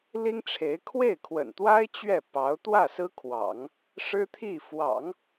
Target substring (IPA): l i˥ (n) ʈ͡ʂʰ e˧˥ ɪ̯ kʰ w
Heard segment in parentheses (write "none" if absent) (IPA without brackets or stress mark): ŋ